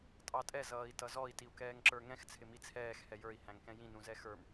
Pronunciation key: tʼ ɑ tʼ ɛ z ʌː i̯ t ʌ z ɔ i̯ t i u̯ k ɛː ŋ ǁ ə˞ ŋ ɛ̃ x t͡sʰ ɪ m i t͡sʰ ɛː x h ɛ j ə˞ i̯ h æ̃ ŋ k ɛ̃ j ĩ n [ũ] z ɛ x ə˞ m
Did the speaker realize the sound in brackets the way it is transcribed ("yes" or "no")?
yes